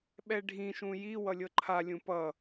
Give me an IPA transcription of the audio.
ɓ ɛ ɖʱ ĩ ʃ ũ j i w ʌ lʲ ɤ ǃʰ a lʲ ũ p ʌ

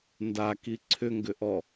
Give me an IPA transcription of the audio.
n d a k i ǀʰ ʏ ŋ ɡ ʏ ʔ ɔ

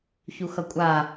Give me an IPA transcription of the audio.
ç u x ʌ kʷʼ a

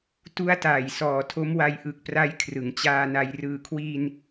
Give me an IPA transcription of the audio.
t u˧ a̯ t aː˨˩ j s ɔː˨˩ tʰ o˦˥ m w a˧ j ʔ ɯ˨˩ k̚ p r a˦˥ j kʰ r ɯ˩˦ ŋ t͡ɕ aː˧ n a˧ j r ɯː˨˩ kʰ w iː˧ n

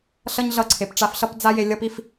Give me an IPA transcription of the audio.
ɬ ʌ˦ ɲ ɮ ʌ˧ ǀʰ e˨ p ʈ͡ʂ a˧ f ɬ ʌ˦ p d͡z a˦ j e˧ lʲ ʌ˦ p i˦ f

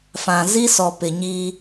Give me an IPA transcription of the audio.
f ã˨ z i˦ s ɔ˨ p ɪ˨ ɲ iː˦

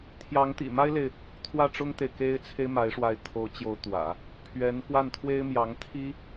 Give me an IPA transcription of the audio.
t̪ʰ j ɑ˧˥ ŋ t̪ ḭ˨˩ m a˥ ɪ̯ l e˨ ɪ̯ | t̪ʰ w ä˥˩ ʈ͡ʂ ʊ˥ ŋ t̪ e˨ ɪ̯ k e˥ ɪ̯ t͡sʰ e˥ ɪ̯ m a˧˥ ɪ̯ ʂ w a˥˩ ɪ̯ t̪ʰ o˧˥ ʊ̯ t͡ɕ j o˧˥ ʊ̯ t̪ w ä̰˨˩˦ | pʰ ɥ ɛ˧˥ n k w a˥˩ n t̪ʰ w e˥ ɪ̯ m j ɑ˧˥ ŋ t̪ʰ i˥

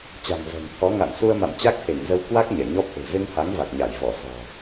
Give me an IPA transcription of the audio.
t͡ɕ a̤˨˩ ŋ v ɛ̤˨˩ ŋ t̪ʰ ɔ˨˦ ŋ a̰ː˧˨ n s u˧ ə̯ m a̰˧˨ m t͡ɕ a˦˥ k̚ h e˧˩ ŋ z ə˧ w k w a˦˥ k̚ ɲ ɛ˧˩ ɲ ɔ˦˥ p̚ ʔ e̤˨˩ v e˧ ŋ h a˨˦ ŋ v a˨˩ k̚ ɲ a˧˩ j v ɔ˧˩ s ɔ̤˨˩

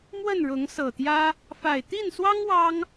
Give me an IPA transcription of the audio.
m w ə˥˨ n ɻ ʊ˨˦ ŋ s ɤ˨˩ t̪ j ä˦ | f a˨˩ ɪ̯ t̪ i˥˨ n s w ɑ˦ ŋ w ɑ˦ ŋ

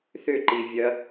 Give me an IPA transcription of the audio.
θ ʏ ǃ i vʲ ɐ

